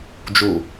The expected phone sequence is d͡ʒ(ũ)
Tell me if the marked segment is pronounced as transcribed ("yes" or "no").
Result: no